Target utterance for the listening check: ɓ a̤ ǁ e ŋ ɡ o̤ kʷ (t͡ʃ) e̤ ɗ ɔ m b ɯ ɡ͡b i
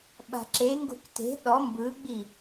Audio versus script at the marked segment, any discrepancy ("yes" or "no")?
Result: yes